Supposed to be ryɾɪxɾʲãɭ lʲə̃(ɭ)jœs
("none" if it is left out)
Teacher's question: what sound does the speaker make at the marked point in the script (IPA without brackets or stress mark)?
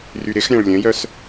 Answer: none